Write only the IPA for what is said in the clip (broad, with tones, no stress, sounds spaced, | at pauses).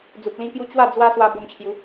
d͡z u˨ p̚ l ĩ˧ k j u˧ t͡ɕ w a˥˧ d͡z w a˦ s w a˧ b o˧ m t͡ɕʰ j u˨˦